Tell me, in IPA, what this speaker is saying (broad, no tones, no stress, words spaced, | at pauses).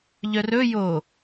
ʎœrɵ jo